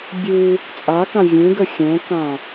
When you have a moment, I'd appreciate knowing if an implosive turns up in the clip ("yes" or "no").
no